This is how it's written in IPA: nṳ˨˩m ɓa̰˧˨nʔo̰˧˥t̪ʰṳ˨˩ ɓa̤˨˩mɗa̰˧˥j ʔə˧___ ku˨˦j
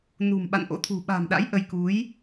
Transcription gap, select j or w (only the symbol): j